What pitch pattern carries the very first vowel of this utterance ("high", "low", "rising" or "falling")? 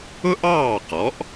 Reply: high